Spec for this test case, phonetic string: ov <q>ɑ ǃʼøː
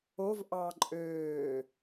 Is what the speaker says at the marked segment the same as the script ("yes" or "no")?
no